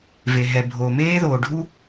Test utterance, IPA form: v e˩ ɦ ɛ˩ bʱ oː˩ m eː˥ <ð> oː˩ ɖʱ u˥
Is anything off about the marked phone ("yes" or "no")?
no